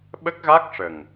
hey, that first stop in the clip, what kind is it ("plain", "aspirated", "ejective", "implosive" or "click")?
implosive